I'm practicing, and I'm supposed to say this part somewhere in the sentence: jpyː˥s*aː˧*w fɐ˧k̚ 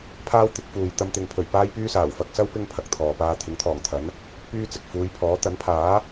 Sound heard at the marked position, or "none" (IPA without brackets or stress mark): aː˨˩